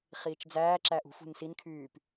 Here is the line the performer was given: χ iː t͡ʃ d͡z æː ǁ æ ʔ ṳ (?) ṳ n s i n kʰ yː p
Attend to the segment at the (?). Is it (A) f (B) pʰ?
A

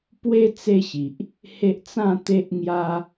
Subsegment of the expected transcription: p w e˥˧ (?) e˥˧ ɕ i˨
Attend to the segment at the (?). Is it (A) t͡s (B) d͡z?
A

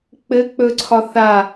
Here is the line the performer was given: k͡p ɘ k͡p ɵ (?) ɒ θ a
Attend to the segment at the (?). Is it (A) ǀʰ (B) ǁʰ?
A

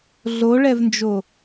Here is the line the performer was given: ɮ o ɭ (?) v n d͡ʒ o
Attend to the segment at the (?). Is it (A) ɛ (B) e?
A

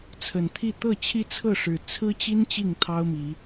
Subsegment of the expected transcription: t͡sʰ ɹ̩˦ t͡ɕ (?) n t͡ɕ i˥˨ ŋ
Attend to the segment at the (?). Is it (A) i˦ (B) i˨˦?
A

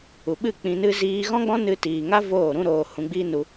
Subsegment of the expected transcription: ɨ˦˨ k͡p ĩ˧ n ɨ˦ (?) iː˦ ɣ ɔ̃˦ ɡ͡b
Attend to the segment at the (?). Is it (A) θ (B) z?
B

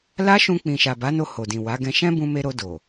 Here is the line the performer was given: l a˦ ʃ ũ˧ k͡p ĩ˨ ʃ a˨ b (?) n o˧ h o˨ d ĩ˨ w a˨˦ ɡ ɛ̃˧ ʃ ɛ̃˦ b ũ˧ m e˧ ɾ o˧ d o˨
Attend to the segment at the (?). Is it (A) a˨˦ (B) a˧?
A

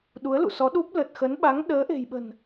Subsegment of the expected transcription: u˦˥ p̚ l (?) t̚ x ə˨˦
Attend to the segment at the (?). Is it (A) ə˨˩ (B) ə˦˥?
A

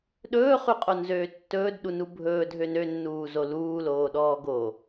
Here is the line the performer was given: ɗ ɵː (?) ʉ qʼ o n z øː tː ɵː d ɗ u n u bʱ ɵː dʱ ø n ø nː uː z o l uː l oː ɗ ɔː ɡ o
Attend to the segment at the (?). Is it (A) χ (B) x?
A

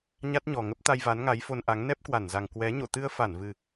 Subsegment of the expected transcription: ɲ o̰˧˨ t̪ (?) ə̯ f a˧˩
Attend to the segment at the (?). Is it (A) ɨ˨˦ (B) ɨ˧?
B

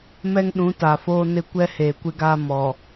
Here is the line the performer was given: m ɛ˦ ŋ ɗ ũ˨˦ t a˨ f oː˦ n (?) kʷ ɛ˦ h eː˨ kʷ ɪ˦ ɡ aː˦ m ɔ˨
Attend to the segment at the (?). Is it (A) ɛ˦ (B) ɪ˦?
B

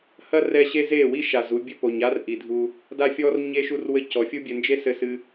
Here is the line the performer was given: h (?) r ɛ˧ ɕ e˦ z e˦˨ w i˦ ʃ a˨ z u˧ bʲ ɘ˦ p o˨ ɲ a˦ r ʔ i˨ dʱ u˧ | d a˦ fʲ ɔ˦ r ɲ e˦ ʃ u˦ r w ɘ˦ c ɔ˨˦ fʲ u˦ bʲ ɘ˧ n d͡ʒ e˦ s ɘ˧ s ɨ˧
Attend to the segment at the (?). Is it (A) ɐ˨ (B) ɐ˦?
B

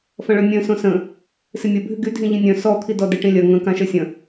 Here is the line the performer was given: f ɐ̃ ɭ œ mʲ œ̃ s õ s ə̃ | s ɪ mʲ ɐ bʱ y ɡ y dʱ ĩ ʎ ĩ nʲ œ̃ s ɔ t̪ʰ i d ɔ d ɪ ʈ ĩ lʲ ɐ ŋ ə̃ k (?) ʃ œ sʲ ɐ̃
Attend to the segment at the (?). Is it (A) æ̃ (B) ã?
B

